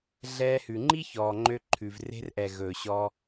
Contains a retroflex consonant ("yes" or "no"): no